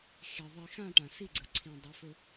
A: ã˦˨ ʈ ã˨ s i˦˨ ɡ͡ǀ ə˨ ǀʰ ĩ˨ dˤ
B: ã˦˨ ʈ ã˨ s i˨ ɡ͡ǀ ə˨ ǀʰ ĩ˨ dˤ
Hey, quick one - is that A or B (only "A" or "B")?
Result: A